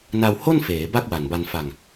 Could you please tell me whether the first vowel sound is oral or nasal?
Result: oral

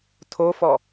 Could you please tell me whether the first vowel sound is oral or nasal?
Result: oral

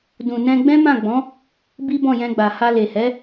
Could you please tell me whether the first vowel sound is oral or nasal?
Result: nasal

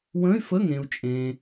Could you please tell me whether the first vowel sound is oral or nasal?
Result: nasal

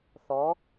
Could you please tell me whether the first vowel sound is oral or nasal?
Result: oral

